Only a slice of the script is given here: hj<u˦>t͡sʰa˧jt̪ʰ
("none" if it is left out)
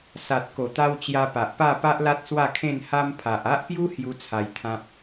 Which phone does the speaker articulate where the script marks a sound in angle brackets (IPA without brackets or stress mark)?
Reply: u˦